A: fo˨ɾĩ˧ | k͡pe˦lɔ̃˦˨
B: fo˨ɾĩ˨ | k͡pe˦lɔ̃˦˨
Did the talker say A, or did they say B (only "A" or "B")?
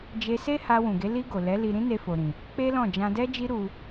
B